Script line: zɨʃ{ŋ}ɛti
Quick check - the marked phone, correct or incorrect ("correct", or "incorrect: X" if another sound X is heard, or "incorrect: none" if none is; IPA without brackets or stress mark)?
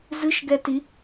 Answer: incorrect: ɡ